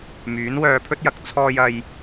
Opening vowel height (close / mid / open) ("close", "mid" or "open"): close